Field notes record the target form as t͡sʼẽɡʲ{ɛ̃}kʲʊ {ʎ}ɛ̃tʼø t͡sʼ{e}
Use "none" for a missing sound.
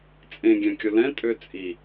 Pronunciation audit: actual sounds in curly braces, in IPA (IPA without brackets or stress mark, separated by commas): ɛ̃, l, i